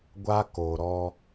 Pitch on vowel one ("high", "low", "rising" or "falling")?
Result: high